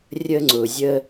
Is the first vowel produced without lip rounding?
yes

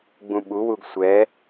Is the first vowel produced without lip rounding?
no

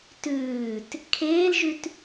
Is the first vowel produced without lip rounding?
no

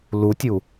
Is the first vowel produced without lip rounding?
no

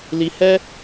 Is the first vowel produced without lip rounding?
yes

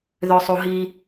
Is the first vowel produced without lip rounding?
no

